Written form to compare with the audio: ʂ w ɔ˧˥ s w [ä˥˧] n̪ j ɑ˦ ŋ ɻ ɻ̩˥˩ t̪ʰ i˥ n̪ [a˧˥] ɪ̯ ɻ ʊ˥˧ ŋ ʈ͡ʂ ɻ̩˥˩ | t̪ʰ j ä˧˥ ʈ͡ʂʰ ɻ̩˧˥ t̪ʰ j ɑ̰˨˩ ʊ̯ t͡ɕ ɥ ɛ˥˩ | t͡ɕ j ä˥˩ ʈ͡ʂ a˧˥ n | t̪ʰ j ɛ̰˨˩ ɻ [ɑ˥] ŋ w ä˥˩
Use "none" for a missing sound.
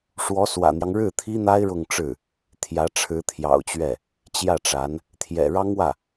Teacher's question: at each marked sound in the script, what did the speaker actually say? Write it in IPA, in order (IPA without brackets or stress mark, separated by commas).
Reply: ä̰˨˩, a˥, ɑ˥